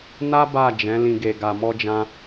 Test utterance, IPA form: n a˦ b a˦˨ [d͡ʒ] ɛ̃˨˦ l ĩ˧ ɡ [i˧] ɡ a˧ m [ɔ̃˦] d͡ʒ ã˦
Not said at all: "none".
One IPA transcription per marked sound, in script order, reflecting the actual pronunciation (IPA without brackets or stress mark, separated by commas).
d͡ʒ, e˧, ɔ˦